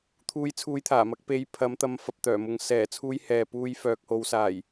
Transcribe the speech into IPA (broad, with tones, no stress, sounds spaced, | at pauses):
t̪ʰ uː˧ j t͡sʰ uː˧ j t̪ʰ aː˨˩ m ɐ˧ k̚ p e˧ j pʰ ɐ˨˥ m t̪ ɐ˨˧ m f ɐ˨ p̚ t̪ œː˨˩ m ʊ˨ ŋ s ɛː˨˩ t͡sʰ uː˨˧ j h ɛː˨ p uː˧ j f œː˨ k̚ h o˨˧ w s aː˨˩ j